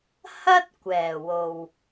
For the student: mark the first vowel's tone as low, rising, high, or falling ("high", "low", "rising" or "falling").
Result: high